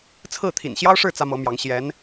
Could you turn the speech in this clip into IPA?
t͡sʰ ɹ̩˥˩ t̪ʰ ḭ˨˩ n ɕ j ɑ˥ ʊ̯ ʂ ɻ̩˥˩ t͡s ä˥ m ɤ˧˥ m j ɑ˧˥ ŋ ɕ j ɛ˧˥ n

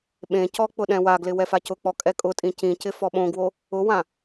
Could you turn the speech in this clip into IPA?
ɓ ẽ c ɔ k͡p ʊ ɗ ɛ̃ w a ɡ l ɪ w ɛ f a c ʊ k͡p ɔ kʼ ɛ kʼ ʊ tʼ ĩ c ĩ c ɪ f ɔ ɓ õ ɡ w o | ʊ w ã

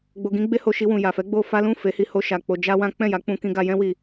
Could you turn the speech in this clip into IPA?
ɡ͡b o˧ ɡ ĩ˦ ɡ͡b e˦ h o˧ ʃ i˧ w ũ˨ j a˨ f ɛ˨˦ ɡ͡b o˦ f a˦ l ũ˦˨ f e˨˦ h i˧ h o˧ ʃ a˨ k͡p o˧ d͡ʒ a˦ w ã˦ k͡p ɛ̃˦˨ j a˨˦ k͡p ũ˧ k ĩ˧ ɡ a˧ j ɛ̃˦ w i˧

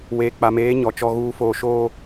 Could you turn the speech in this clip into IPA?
w eː˨ k͡p a˨ m eː˨˦ ɲ ɔ˨ t͡ʃ ɔ˦ ɣ uː˦ f oː˦ ʃ oː˦

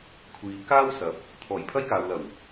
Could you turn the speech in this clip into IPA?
kʷʰ iː˨ k aː˥ w s ɐ˨˥ p̚ | t̪ʰ ɔː˨˩ j pʰ ɐ˥ j k aː˨ w l ɐ˨˩ w

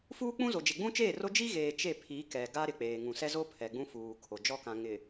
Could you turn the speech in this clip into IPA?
f uː˦ k͡p ũ˦ z o˨ d͡ʒ e˨ ɡ͡b ũ˦ t͡ʃ eː˦˨ r o˦ d͡ʒ i˦ ɣ eː˨ t͡ʃ e˦˨ pʰ i˨˦ k ɛ˨ ɡ a˦ ɾ ɪ˨ k͡p eː˨ ŋ ũ˨ s ɛ˦ z o˦ pʰ ɛ˨ ɡ͡b ũ˦ f uː˨ kʰ o˨ d͡ʒ ɔ˦ k ã˨ ŋ ɪ˨

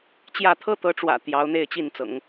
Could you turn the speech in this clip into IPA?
t͡ɕ j ä˥˩ t̪ʰ ɤ˥ t̪ ɤ˧˥ ʈ͡ʂ w ä̰˨˩ t̪ j ɑ˧˥ ʊ̯ n̪ e˥˧ ɪ̯ t͡ɕ i˥˩ n t͡s ɤ̰˨˩˦ ŋ

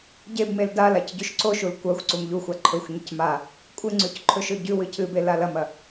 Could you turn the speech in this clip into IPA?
ɟ e b m e l d a l a c ɟ ʉ ʃ ǀ o ʃ u l kʷ ɐ xʷ ǀ u m ʎ u xʷ a ǃʰ ɵ xʷ ɲ ɨ c m a | kʷʼ ɨ ŋ͡ǀ ʉ c ǃʰ ɵ ʃ ɵ ɟ ʉ w ɨ cʰ ɨ b e l a l ɐ m ɐ

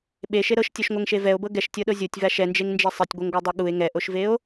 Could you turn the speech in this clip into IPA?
ɓ e ʃ e ɾ ɤ ʃ tʲ ɤ ʃ ŋʷ ɛ ŋ ʃ e v ɛ o̯ b ɤ ɡ ɛ ʃ tʲ ɤ ɗ ɤ zʲ o tʲ v a ʃ ɛ n d͡ʒ e ŋ n d͡ʒ e sˤ e tʲ ɡʷ e ŋ ɡʷ ɤ dˤ ɤ ɠ u e̯ ŋ ɛ ʔ o ʃ v e o̯

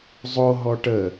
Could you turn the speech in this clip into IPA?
zˤ o ɦ ɔ ʈ ə

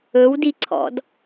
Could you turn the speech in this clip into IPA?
ɵ w d i ǀʰ ɔ̰ d

